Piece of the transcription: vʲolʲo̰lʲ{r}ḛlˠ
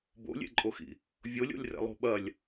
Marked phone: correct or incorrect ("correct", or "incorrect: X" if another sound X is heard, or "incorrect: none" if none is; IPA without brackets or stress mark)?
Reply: correct